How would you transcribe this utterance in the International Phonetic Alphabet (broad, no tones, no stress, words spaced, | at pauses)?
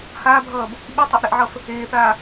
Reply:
haːbʱʌːb | ɓitˤaʔɾɛʔʕʌf | eːθaː